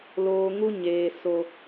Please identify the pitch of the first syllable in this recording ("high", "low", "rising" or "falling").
low